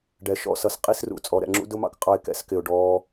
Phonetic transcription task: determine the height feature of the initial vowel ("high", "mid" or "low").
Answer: mid